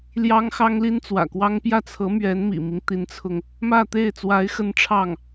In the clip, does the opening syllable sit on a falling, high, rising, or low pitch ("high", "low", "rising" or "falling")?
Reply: high